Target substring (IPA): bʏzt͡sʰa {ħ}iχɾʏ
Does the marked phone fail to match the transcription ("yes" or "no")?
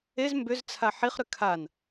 no